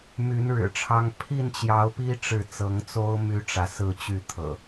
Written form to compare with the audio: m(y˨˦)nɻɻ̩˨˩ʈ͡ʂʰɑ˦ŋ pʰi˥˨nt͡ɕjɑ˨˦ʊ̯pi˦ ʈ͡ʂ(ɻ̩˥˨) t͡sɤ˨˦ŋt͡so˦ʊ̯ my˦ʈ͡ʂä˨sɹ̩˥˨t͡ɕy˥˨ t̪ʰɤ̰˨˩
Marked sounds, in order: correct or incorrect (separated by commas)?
correct, correct